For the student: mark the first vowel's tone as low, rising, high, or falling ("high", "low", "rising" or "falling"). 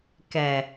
low